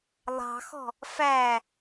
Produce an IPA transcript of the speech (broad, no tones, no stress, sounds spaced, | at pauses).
lˠ ɑ̤ x ɔ̤ | f æ